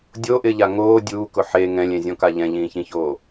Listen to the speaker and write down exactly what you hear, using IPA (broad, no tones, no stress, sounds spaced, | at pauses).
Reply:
dʲ o ʔ ɪ ʎ a ŋ oː dʲ uː k ʊ ħ e ŋ ɛ̃ lʲ ẽ zʲ ɔ̃ k a ʎ ɛ̃ ʎ ĩː ç ĩ ç oː